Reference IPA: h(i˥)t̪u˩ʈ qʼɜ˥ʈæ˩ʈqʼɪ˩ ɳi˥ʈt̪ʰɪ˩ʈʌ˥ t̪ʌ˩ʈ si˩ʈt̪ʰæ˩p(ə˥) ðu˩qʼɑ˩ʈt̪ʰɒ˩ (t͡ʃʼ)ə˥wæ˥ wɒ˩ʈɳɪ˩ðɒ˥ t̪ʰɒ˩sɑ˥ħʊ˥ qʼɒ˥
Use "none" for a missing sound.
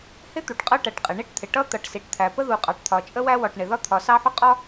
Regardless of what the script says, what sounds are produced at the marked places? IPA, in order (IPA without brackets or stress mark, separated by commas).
ɪ˥, ə˥, t͡ʃʼ